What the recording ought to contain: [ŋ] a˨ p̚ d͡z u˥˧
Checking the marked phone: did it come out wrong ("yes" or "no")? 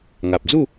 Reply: no